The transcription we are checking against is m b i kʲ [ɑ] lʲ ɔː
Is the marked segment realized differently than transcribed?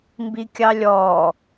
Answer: no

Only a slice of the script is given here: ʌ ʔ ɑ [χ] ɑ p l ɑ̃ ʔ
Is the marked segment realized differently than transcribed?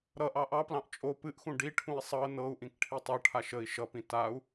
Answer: yes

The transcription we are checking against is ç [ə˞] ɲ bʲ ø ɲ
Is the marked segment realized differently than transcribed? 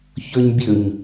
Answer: no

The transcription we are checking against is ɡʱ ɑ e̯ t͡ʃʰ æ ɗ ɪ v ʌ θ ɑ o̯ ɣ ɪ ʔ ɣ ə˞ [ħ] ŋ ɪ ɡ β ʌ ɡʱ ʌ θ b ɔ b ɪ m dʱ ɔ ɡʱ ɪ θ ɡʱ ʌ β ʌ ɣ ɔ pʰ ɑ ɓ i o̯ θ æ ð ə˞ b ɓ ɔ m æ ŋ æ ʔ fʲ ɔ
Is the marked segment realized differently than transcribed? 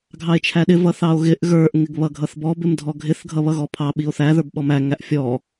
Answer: yes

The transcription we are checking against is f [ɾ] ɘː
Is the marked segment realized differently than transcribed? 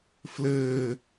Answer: yes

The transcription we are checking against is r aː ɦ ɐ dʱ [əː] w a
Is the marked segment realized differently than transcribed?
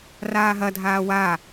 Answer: yes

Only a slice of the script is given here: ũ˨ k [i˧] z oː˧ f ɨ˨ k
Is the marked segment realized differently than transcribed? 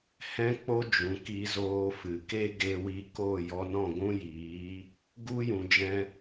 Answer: no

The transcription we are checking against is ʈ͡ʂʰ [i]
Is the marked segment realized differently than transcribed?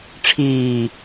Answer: yes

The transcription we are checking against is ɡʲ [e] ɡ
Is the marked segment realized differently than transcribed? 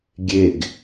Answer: no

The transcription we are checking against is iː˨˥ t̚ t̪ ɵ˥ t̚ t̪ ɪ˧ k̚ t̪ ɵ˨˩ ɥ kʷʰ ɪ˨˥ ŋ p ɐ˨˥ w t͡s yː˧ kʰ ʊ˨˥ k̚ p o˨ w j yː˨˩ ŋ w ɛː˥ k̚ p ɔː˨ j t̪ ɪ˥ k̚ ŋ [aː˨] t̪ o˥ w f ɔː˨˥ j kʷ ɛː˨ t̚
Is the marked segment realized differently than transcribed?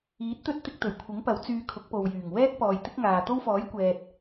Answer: no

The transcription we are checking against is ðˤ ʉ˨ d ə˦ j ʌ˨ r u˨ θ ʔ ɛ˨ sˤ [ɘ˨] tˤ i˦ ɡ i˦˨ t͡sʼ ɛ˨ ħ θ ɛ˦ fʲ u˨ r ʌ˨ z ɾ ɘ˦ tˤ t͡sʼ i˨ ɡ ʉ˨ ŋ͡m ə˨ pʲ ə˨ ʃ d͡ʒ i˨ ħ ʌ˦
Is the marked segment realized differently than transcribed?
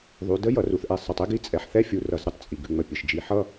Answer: no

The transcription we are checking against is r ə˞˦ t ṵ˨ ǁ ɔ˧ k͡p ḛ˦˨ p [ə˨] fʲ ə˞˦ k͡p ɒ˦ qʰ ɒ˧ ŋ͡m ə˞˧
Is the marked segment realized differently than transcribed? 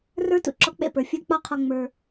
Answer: yes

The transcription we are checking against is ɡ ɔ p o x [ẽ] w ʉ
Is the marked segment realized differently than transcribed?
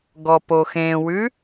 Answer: no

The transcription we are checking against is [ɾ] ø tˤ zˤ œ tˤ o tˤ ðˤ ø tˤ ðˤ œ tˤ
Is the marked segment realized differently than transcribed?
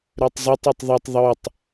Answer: no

